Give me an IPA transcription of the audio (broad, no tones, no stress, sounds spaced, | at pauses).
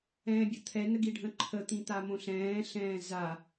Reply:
ɛ̃ː bʲ ə t̪ʰ ɛ n ə ɡ i ɖʱ ə̃ ǃʰ ə t̪ ĩ t̪ a m õ ɬ ɛ̃ː ɬ ɛ̃ː z a